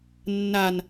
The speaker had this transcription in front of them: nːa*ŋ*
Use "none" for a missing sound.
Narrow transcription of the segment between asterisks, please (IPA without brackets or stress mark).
n